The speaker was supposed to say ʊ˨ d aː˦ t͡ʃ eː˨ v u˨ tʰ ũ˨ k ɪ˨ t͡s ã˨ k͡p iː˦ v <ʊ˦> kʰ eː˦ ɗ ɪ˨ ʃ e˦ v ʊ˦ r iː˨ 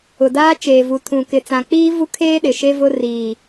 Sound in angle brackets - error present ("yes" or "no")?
yes